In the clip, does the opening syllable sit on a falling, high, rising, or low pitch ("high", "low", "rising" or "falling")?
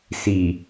low